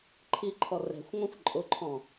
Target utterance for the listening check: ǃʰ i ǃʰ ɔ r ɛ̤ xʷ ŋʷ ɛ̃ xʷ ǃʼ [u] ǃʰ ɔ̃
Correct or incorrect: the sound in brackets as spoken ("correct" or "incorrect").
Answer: incorrect